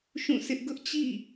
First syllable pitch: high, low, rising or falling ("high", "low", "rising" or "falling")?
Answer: falling